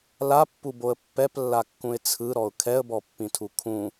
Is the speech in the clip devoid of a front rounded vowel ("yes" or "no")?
yes